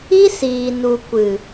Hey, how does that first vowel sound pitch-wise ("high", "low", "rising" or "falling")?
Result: high